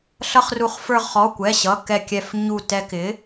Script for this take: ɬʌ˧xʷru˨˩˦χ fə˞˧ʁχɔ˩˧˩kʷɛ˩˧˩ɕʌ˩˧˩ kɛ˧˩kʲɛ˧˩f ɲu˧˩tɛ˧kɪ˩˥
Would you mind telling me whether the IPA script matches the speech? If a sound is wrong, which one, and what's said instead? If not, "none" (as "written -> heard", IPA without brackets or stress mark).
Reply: xʷ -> χ